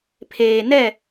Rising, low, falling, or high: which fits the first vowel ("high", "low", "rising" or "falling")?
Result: low